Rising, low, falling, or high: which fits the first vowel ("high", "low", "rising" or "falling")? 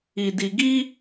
low